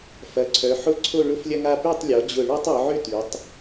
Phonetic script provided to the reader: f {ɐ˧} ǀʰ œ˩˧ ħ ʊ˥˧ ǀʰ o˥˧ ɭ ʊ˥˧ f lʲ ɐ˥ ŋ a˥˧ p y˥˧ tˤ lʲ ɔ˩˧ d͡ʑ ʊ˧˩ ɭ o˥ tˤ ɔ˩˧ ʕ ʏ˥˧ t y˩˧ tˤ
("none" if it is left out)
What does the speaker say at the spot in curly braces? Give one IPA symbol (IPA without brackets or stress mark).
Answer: ɐ˩˧